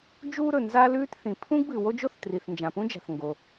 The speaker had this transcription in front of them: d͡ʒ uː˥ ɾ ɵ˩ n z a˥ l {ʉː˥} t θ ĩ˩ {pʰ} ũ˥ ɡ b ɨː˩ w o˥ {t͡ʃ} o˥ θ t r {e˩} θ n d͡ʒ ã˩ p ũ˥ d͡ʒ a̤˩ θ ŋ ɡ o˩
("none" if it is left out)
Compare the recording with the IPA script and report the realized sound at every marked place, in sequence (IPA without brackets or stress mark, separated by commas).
ʉː˥, pʰ, d͡ʒ, i˩